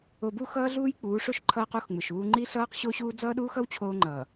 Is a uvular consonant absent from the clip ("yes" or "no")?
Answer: no